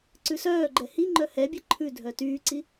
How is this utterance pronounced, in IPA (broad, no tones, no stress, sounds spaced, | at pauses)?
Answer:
ǀ ʉ s œː ɡ͡ǃ ɛ h i ŋ͡ǃ œ h ɛ bʲ ɛ ǃʰ ʉ dʱ œ t yː ǀ i